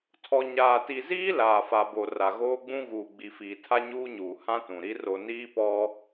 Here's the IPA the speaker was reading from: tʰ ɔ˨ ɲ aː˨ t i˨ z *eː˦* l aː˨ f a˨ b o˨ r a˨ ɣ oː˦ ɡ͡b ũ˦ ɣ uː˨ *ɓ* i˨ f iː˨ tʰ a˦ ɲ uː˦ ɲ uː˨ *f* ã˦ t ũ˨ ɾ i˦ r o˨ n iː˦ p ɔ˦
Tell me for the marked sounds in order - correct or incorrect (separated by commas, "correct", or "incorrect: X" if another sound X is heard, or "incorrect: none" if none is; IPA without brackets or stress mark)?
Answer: incorrect: iː˦, incorrect: ɡ͡b, incorrect: h